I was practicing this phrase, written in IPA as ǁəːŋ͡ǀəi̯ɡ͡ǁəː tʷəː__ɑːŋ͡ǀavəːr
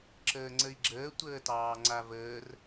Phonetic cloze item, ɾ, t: t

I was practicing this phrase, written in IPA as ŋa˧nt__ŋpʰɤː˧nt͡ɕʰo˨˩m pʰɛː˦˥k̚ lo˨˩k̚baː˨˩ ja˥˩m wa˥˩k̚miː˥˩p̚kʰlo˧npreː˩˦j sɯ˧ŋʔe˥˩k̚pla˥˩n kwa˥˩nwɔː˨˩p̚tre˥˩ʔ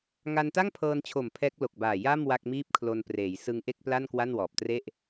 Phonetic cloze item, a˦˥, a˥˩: a˥˩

